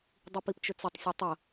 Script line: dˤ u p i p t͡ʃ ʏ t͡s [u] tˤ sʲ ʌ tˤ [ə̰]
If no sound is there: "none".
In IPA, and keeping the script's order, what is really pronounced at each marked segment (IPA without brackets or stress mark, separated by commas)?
ʏ, ə